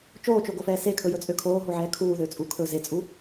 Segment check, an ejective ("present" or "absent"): present